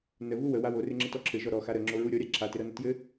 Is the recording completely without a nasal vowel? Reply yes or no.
yes